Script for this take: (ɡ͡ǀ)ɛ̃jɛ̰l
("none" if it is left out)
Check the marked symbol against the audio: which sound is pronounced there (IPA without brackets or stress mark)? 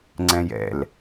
ŋ͡ǀ